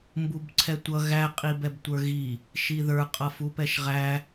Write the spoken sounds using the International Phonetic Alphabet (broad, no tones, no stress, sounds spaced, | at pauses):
m b u b ǀʰ ɛ tʷ ʌ ɣ æ qʼ i b ɛ b tʷ ə˞ ɣ i | ʃ i ð ə˞ qʼ ʌ f u p ɛ ʃ ʁ æ